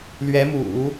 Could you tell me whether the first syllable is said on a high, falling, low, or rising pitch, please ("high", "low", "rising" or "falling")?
rising